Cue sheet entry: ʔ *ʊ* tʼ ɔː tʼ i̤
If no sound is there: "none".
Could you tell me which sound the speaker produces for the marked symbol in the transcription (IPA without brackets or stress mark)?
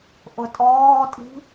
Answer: ʊ